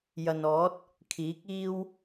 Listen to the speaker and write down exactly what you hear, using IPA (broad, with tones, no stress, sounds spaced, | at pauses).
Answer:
j ɐ˨ n ɔː˨˥ t̚ | kʰ iː˨˥ k̚ iː˥ w